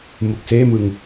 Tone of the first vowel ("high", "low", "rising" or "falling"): low